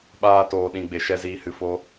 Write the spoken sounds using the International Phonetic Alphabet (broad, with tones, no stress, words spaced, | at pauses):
ɓaː˨ toː˨ɗĩ˨ɡ͡be˨ ʃɛ˨ziː˨hɨ˨ fo˦